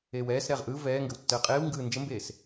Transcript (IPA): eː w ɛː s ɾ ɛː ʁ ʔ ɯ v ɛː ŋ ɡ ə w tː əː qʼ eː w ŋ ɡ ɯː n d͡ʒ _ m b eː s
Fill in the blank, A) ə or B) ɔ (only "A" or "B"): A